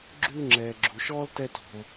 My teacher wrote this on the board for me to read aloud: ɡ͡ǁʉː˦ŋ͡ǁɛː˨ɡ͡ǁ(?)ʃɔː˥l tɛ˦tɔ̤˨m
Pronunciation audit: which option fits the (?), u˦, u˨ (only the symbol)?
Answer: u˨